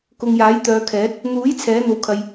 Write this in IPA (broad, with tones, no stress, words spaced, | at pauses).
kʊ˨ŋjaː˨˥j t̪œː˨˧kʰɛː˨˥t̚ | n̪uː˨˥j t͡sʰɛː˨˥n̪o˨wkʰɐ˨j